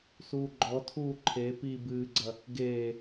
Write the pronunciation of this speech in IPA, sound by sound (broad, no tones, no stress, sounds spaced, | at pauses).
s uː ɡ͡ǃ ɔ tʰ uː ǃʰ e p i b ɨː ɡ͡ǀ ɐ | ɡ eː